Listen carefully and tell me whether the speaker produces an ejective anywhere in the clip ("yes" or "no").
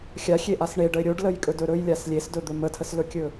yes